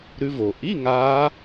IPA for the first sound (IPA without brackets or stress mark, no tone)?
ɾ